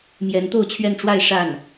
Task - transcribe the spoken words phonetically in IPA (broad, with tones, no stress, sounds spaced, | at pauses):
m j ɛ˧˥ n t̪ o˥˧ ʊ̯ t͡ɕʰ ɥ ɛ˥˧ n ʈ͡ʂ w a˥˧ ɪ̯ ʂ a˥˩ n